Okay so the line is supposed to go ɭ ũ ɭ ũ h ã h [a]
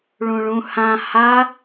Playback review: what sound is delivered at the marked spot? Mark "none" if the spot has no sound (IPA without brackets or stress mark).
a